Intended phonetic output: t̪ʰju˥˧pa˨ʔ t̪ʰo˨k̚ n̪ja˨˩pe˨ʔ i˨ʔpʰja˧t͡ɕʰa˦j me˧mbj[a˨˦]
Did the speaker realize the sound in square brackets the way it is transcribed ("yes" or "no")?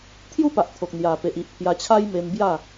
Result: no